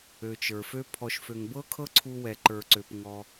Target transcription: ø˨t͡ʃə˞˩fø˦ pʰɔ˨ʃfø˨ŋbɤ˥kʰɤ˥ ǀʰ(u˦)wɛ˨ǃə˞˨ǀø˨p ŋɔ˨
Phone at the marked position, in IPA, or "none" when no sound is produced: u˦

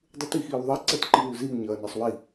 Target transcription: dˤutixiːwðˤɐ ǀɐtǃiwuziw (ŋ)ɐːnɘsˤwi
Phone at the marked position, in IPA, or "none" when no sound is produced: ɲ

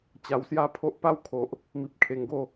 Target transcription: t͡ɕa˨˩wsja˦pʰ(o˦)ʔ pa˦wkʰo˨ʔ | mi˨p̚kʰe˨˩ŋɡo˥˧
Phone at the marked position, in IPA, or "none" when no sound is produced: o˦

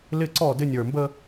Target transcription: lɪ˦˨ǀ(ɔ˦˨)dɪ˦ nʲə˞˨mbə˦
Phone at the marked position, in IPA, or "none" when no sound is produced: ɔ˦˨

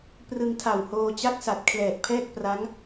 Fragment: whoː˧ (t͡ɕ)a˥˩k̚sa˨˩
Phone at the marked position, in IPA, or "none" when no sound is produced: t͡ɕ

